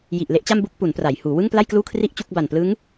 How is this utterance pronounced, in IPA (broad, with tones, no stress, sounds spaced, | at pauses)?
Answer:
j i˨˩ ʔ l e˦˥ ʔ t͡ɕ a˥˩ m b u˥˩ k̚ p u˩˦ n p r a˩˦ j h uː˩˦ w ɯ˥˩ ŋ p l a˥˩ j k l uː˥˩ kʰ r i˥˩ ʔ t͡ɕ u˥˩ k̚ b a˨˩ n p l ɯ˦˥ ŋ